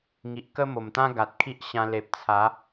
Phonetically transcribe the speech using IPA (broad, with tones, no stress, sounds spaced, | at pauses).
ŋ i˨ ʔ k ə˦ m o˨˩ m t̪ ã˦ ɡ a˨ t̚ kʰ i˦ ʔ ɕ ã˧ l e˨ p̚ t͡sʰ a˨˦